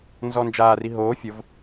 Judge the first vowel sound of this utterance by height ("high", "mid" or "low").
mid